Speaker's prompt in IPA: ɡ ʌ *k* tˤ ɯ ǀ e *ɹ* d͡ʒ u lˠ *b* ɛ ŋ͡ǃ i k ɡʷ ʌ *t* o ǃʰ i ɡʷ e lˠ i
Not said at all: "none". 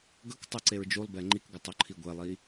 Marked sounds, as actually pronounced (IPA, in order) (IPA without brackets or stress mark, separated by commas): k, ɹ, b, tˤ